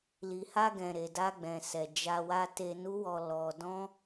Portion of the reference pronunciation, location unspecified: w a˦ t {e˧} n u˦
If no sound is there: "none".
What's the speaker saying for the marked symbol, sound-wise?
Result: e˧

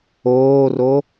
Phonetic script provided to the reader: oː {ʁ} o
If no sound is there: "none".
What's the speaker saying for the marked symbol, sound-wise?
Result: r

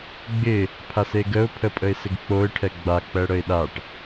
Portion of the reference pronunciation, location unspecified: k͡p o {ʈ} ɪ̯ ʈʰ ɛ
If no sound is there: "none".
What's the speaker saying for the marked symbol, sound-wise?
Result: none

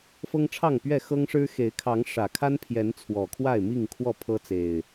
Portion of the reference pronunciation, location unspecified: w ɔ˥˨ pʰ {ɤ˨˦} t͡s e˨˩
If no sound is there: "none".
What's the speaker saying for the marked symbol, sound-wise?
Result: ɤ˦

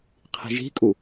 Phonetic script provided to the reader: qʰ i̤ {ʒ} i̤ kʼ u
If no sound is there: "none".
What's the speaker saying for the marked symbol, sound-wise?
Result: ʒ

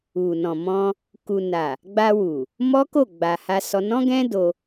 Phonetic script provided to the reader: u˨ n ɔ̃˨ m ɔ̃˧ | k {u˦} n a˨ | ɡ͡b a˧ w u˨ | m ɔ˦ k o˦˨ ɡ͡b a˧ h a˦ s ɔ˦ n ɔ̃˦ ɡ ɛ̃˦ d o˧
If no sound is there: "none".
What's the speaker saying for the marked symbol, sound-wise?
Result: u˨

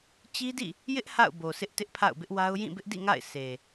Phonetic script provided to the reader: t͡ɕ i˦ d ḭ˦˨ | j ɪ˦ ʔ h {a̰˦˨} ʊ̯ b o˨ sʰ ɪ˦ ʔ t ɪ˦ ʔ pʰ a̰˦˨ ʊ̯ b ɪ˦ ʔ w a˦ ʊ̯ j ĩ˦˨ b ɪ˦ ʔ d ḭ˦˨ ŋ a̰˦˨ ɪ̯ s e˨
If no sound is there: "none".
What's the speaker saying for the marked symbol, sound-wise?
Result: a̰˦˨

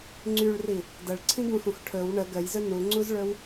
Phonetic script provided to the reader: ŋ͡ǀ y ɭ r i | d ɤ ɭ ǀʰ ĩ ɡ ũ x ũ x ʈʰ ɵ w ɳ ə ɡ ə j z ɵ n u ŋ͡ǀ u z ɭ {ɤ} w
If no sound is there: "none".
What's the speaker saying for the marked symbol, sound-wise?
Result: ɵ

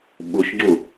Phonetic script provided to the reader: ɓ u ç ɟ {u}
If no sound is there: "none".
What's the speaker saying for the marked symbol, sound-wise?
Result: u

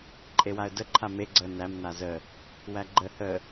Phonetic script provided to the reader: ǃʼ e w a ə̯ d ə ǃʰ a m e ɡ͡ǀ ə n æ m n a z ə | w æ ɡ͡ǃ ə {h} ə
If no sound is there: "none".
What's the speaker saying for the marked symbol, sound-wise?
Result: h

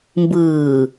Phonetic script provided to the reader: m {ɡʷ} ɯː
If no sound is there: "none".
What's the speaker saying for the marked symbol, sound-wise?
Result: b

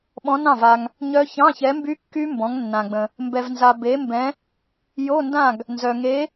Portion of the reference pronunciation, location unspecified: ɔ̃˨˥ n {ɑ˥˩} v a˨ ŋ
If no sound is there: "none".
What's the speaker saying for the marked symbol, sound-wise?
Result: ɑ̃˥˩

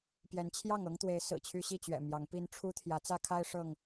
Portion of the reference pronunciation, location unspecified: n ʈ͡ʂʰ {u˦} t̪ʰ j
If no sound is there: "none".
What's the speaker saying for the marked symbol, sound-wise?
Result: u˦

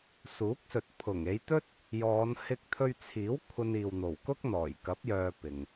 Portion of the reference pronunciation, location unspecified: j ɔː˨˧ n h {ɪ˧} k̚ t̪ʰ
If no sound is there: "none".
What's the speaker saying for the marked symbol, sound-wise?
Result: ɪ˧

